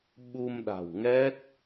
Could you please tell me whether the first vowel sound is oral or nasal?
oral